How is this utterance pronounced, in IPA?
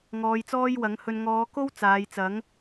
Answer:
ŋ ɔː˨˧ j t͡s ɔː˥ j w ɐ˨˥ ŋ h ɵ˧ n ŋ ɔː˨˧ k o˥ w t͡s aː˨˧ j t͡s ɐ˨˥ ŋ

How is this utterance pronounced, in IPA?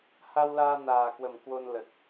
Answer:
h a˧ w l aː˧ n aː˨˩ k w ə˨˩ m k w o˧ n l ə˨˩ t̚

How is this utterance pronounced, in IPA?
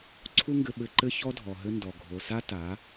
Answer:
ǀʰ u˦ ŋ ɡ ɘ˧ ɓ ɘ˧ ǃ ɘ˦ ç ɔ˦ dʱ ɔ˨ ɦ ɘ˧ n d ɔ˨ ɡʱ o˨ s a˦ t a˨˦

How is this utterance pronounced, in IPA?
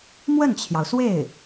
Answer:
m w ə˥˩ n t͡ɕʰ j ɑ˩ ʊ̯ s w e˥˩ ɪ̯

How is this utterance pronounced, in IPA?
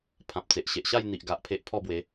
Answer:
pʰ ã˨ p̚ t͡s e˨ ʔ ɕ e˨ ʔ ɕ a˥˧ j n̪ i˨ ʔ ɡ a˨ ʔ pʰ e˦ ʔ pʰ ɔ˥˧ b w e˨˦

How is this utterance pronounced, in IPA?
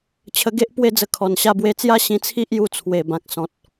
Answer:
t͡ɕʰ ə˧ ɡ e˦ ʔ p w e˥˧ d͡z ə˧ kʰ ɔ˨˩ n ɕ a˧ b w e˧ t͡s j a˦ ɕ ĩ˧ t͡sʰ i˦ ʔ j u˧ t͡sʰ w e˨˩ b ã˨ k̚ s ɔ̃˨ t̚

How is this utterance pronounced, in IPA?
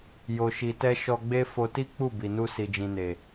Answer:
j o˨ ʃ i˨ t ɛ˧ ʃ ɔ˧ ɡ͡b e˦ f o˧ t i˦ k͡p u˦˨ b i˨ n u˧ s i˨ d͡ʒ ĩ˨ n e˨

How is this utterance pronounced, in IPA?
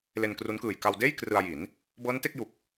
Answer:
l e˧ n k r u˦˥ n k ɯː˨˩ j k a˧ w d eː˥˩ j k r ɯ˧ a̯ j i˩˦ n | b ɤː˦˥ n t e˥˩ k̚ j u˨˩ k̚

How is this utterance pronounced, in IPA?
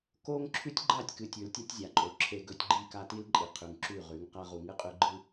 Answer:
k o˦ ŋ ǁʰ ʉ˦ tʲ ɡ͡ǃ a˦˨ tʲ k ɨ˨ tʲ ʉ˨ l tʲ ɐ˦ tʲ zʲ a˨ ǃʼ o˨ ǁʰ e˦ ɡ ɵ˦ tʲ ɡ͡ǃ i˦˨ k a˦ t i˦ l ǃʼ i˨ qʰ ʉ˨ ŋ ǁ ʉ˦˨ ʁ ʉ˨˦ ŋ q a˦ ʁ u˨ ŋ ɨ˦ qʼ ʉ˦ ɡ͡ǃ ɨ˦

